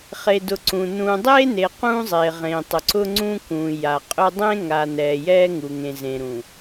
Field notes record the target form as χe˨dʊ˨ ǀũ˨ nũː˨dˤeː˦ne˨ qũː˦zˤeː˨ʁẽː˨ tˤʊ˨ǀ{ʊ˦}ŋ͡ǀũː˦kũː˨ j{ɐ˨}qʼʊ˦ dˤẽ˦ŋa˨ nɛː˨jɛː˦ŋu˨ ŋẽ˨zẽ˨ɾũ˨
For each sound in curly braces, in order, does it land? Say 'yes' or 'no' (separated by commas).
yes, no